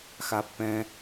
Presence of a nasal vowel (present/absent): present